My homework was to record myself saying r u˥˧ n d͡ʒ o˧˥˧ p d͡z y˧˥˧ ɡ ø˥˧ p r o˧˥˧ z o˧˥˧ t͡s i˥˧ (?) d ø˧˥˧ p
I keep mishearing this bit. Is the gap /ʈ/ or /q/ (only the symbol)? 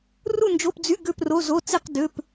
q